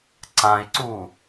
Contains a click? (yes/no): yes